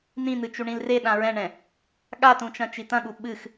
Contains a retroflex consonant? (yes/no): yes